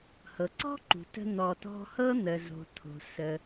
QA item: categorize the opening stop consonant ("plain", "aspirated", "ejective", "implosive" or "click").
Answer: click